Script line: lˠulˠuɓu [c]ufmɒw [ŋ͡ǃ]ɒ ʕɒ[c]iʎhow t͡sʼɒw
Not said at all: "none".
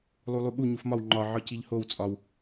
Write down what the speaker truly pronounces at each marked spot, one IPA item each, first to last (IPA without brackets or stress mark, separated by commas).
ɲ, ŋ͡ǃ, c